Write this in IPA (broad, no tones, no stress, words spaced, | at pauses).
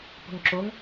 po̤ŋǁoŋ